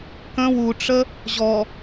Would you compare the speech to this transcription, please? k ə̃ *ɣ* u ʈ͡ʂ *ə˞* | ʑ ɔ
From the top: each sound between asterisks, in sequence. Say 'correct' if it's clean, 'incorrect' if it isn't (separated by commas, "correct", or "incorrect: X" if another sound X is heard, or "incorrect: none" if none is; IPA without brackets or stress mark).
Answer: incorrect: w, incorrect: ə